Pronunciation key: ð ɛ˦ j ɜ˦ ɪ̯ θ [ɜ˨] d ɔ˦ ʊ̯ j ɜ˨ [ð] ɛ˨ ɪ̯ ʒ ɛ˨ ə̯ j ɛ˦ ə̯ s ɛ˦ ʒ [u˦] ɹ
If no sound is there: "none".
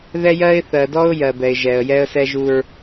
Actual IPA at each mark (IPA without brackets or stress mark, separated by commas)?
ɜ˨, b, u˦